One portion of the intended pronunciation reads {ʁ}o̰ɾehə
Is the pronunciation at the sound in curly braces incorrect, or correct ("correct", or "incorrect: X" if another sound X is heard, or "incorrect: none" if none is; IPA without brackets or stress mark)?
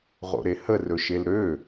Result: correct